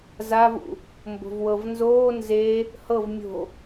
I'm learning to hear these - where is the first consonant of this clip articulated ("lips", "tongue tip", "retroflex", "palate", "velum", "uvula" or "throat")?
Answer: tongue tip